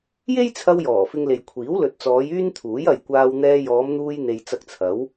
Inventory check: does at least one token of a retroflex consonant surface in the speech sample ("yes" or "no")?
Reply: no